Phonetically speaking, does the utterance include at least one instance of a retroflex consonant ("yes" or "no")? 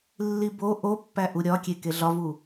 no